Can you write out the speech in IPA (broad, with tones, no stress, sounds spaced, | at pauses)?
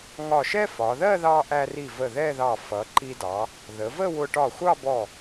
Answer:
ŋ ɒ˧˩ ʃ ɛ˥ f ɒ˩˧ ð ɜ˥˧ ð ɑ˧ ʔ æ˧ r i˧˩ v ə˧˩ ð ɛ˥˧ ð ɑ˧˩ f ʌ˩˧ ǃ i˧ d ɑ˩˧ | ð ə˩˧ v ə˥˧ w ʊ˧ ʈ ɒ˧˩ xʷ ɑ˥˧ b ɔ˧˩